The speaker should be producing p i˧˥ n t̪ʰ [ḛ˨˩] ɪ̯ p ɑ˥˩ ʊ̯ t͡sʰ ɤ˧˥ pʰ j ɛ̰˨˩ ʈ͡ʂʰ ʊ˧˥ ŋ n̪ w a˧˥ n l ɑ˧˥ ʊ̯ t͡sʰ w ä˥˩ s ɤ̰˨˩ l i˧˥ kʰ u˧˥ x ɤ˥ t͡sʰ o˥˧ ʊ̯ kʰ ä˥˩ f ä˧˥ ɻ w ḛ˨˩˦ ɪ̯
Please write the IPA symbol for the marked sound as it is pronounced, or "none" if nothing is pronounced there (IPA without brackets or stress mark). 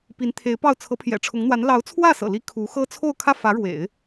e˧˥